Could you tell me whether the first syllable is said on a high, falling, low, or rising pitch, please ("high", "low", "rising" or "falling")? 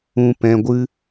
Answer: low